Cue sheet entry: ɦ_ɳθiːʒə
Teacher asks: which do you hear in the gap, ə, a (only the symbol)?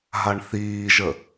a